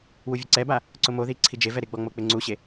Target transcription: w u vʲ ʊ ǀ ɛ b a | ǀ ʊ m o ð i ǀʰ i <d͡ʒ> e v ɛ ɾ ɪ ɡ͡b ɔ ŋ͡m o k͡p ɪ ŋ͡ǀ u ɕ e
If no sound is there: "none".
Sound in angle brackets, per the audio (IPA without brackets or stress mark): d͡ʒ